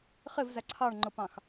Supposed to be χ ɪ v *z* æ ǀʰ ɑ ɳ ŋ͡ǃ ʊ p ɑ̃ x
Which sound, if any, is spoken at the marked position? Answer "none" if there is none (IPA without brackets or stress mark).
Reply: z